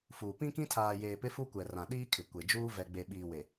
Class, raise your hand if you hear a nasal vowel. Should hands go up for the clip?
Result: yes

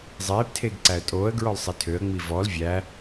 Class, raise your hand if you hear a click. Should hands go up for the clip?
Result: yes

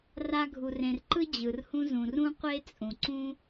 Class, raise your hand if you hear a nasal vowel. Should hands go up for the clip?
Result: yes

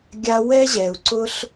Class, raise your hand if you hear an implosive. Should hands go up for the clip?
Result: no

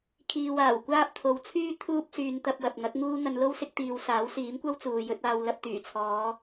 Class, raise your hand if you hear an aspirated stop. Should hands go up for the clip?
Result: yes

